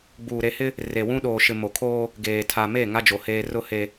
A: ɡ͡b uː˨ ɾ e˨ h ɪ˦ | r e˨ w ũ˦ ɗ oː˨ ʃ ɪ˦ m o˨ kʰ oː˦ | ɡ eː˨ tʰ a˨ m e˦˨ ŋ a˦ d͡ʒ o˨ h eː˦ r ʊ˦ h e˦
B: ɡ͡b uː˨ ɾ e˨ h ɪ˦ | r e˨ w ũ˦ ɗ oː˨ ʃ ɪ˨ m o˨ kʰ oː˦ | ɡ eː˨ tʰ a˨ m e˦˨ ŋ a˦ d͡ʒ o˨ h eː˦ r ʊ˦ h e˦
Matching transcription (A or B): B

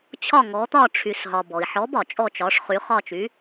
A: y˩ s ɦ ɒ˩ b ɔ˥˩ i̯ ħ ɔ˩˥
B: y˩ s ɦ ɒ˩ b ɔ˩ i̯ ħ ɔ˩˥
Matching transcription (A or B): B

